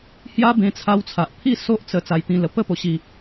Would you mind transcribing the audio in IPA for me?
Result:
h j a˦ b ẽ˧ t͡sʰ a˧ w t͡sʰ a˨ ʔ pʰ i˥˧ s o˦ ʔ t͡s ə˧ t͡s a˧ j t̪ ĩ˧ l ə˧ p ə˥˧ p o˧ ɕ i˧

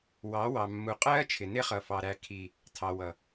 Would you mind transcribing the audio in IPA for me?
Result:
w ɑ˨˦ w ɑ˨ mː u˨ qʼ ɜː˦ t͡ʃʰ ɪ˨ n ɪ˦ χ ʌ˨ f ɑ˨ ɾ æ˨ kʰ i˨ | tʰ ɑ˨ w ʌ˨

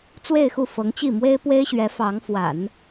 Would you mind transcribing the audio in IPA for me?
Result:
t͡s w e˥˧ ɪ̯ x u˥˩ f ɤ˧˥ ŋ t͡ɕ i˥˩ m w e˥ ɪ̯ p w e˥ ɪ̯ ɕ ɥ ɛ˧˥ f ɑ˧˥ ŋ f w a̰˨˩˦ n

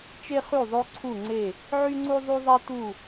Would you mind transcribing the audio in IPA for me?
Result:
t͡ʃ e˥ χ y˥˩ ðˤ o˥ ǀʰ u˥˩ ŋ͡ǀ e˥˩ | ʕ y˥ ŋ͡ǀ u˥ ðˤ y˥ ðˤ e˥ t u˥˩

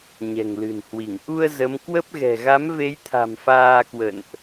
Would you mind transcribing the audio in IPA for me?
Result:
ɲ ɛ̤˨˩ ŋ l ɨ̤˨˩ n h w i˧˩ ŋ ʔ u˧ ə̯ z ə˨˦ m k w ə˦˥ p̚ ɣ ɛ̤˨˩ ɣ a˨˦ m v e˨˦ j t̪ʰ a̤˨˩ m f aː˧ k w ə̰˧˨ n ʔ

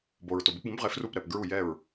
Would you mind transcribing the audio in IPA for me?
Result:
b o˩ ɹ t o˩ b e˩˧ p b ũ˩˧ b ʁ e˩˧ f r u˧˩ p ɾ ɛ˩ p ɡ ɹ u˧˩ j ɛ˧˩ ɹ

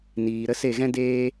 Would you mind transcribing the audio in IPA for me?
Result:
n iː˨ ɾ ə˦ s e˦˨ ɣ ɛ̃˦ d eː˦

